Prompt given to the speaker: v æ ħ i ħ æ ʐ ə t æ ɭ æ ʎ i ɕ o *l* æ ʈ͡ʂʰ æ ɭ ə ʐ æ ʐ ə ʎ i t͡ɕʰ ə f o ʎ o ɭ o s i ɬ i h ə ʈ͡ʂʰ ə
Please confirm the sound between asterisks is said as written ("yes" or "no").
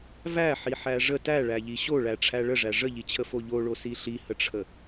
no